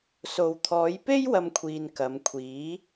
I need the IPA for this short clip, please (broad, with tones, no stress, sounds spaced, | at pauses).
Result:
s o˧ w t̪ʰ ɔː˨˧ j p e˥ j w ɐ˥ m kʷʰ iː˧ n k ɐ˨˧ m kʷʰ iː˨˥